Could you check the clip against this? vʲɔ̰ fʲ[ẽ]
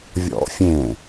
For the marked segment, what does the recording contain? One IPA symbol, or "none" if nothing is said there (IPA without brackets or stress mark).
ẽ